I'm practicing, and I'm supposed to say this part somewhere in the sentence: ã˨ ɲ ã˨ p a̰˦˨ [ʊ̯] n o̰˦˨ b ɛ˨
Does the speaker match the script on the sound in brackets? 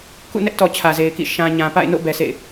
no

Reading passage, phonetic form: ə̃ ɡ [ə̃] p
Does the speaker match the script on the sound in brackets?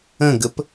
no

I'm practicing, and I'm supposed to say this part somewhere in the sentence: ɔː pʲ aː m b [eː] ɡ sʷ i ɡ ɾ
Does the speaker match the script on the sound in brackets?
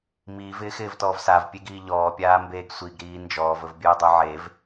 yes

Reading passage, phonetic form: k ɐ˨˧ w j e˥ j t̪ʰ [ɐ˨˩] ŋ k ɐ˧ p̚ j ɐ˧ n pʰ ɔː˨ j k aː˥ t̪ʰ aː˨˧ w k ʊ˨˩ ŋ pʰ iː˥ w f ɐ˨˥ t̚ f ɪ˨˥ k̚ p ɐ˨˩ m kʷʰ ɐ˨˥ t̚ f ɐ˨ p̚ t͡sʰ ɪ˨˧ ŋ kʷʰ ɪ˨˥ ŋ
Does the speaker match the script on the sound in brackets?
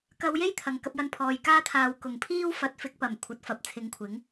yes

